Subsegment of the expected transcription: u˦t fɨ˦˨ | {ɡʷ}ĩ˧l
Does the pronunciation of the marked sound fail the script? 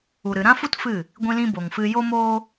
no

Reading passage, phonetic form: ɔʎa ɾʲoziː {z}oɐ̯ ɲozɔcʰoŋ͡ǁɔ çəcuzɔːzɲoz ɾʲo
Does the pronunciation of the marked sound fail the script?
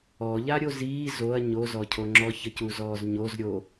no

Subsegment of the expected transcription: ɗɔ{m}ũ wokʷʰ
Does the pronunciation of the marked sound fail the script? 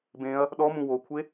no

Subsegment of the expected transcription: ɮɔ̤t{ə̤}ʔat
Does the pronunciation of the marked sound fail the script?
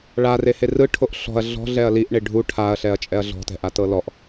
yes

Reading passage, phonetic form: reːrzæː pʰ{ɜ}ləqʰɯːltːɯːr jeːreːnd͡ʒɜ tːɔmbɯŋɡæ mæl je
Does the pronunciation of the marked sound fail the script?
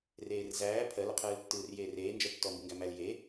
no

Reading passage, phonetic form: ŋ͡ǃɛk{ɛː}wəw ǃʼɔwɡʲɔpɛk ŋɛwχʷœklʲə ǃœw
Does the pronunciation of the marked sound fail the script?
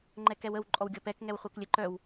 yes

